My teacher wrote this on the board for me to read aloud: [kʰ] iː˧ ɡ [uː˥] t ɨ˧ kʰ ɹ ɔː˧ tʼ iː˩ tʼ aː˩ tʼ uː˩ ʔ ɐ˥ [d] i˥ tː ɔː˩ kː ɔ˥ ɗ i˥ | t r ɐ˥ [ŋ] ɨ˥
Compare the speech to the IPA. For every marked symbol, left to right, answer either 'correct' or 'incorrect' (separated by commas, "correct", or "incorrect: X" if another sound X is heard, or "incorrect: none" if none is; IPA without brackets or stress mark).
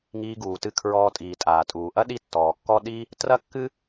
incorrect: ŋ, incorrect: uː˩, incorrect: ɗ, incorrect: kː